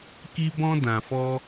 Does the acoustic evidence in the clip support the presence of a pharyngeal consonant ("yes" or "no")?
no